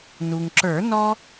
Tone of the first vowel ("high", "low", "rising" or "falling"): low